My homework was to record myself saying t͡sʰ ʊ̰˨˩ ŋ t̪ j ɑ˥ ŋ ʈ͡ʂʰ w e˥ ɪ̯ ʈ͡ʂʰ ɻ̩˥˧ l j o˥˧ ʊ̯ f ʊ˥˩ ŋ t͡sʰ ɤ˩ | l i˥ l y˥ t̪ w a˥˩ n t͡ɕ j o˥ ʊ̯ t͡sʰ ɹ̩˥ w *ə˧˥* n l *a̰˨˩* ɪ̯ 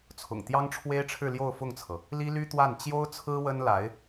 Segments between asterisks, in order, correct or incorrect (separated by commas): incorrect, incorrect